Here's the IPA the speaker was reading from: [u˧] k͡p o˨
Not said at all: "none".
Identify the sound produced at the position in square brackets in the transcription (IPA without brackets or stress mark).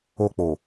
o˧